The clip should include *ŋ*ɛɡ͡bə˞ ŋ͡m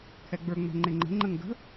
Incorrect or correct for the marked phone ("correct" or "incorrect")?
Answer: incorrect